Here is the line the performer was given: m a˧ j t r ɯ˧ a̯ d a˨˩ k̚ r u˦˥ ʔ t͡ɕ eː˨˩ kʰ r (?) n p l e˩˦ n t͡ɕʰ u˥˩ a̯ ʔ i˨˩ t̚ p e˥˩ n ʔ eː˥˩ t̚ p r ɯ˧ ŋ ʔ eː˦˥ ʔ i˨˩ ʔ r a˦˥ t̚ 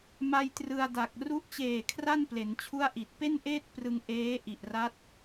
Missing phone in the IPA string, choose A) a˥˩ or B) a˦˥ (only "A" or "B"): A